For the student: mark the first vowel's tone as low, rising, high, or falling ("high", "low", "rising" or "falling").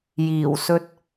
low